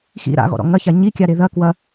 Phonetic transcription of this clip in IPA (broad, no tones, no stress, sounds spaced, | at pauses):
x ḭ ɾ a̰ ɣ ɔ̰ ɾ ɔ̰ ŋ ɐ ç a ɲ i kʲ a ɾ e ð ɐ k w ɐ